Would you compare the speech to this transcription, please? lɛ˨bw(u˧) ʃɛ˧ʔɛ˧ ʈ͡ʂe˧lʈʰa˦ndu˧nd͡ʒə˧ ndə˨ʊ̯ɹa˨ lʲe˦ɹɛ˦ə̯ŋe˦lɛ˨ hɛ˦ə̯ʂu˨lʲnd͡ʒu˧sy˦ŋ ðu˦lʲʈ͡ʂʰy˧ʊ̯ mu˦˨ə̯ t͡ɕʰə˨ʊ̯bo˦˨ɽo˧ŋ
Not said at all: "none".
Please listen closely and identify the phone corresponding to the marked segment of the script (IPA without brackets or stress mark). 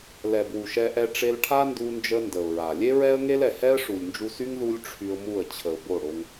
u˨